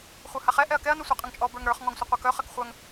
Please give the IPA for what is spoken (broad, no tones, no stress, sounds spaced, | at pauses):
χʷ ə˞ h a χ ɛ ʔ ɛ ɐ̯ k ɛ ɐ̯ n œ sʷ a qʼ ə ŋ t͡ʃʼ ɔ b ə˞ ŋ ɾ ə˞ χ ŋ ɔ ŋ sʷ ɐ qʷ ə˞ k œ χ ɐ k χʷ œ ŋ